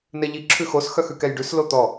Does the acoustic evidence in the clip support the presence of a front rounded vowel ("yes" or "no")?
yes